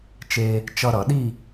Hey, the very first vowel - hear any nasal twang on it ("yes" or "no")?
no